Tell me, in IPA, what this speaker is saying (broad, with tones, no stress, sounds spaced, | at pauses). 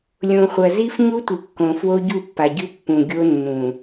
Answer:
lʲ õ˨ χʷ ɐ˨ z i˦ f ɲ u˦ tʷ ɨ˨ kː õ˨ f w o˦ ɟ u˦˨ pː a˨ ɟ ʉ˦ pː ũ˨ ɡʲ o˦ nː ũ˨